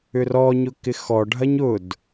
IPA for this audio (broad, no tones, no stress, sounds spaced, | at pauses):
ʏ r ɔ ɲ ʊ k ɪ x ɔ ɖʱ ɐ ɲ ʊ d